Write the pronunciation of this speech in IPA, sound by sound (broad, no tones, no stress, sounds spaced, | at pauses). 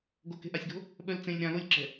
ɡ o k e̤ ʔ a sʲ ɡ o̤ | ɓ œ l t͡s ẽ lʲ ɾ ã l o lʲ ǁ ɛ̤